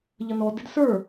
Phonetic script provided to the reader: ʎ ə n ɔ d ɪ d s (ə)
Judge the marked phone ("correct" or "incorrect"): incorrect